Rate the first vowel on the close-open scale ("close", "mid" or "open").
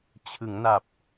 close